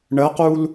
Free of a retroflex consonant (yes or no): no